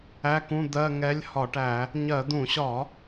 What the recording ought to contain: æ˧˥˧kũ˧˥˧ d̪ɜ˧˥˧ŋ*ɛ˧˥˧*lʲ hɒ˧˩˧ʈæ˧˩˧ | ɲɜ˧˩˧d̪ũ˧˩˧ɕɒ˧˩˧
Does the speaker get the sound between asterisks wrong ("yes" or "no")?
no